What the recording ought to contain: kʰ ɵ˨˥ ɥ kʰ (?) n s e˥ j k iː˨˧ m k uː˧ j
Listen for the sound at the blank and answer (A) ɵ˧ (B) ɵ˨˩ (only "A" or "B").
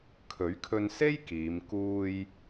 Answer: A